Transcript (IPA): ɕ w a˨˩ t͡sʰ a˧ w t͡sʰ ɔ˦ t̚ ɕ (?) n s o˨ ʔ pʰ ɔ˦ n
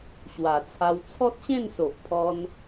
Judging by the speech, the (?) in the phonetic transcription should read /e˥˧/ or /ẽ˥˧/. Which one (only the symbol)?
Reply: ẽ˥˧